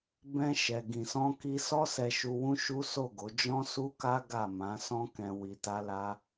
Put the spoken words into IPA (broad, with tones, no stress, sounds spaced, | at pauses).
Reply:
b ɛ̃˧ ʃ ɛ˨ ɡ ĩ˨ s ɔ̃˧ k i˧ s ɔ˦ s ɛ˧ ʃ u˧ w ũ˦ ʃ u˦ s o˦˨ ɡ o˨˦ d͡ʒ ɔ̃˦ s u˦ k a˦ ɡ a˦˨ m ã˨˦ s ɔ̃˦ k ɛ̃˧ w i˧ t a˦ l a˦